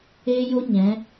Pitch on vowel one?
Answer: high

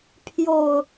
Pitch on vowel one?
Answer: low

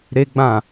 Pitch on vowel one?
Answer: high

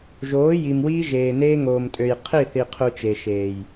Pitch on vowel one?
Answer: rising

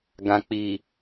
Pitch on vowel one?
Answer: low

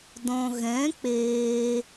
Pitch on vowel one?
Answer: low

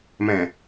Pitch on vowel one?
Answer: low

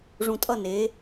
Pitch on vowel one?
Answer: low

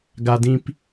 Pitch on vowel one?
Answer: high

